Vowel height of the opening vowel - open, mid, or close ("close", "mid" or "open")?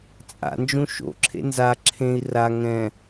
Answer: open